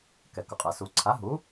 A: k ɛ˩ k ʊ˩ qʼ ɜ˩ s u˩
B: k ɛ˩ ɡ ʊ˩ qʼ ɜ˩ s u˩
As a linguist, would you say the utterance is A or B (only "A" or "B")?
A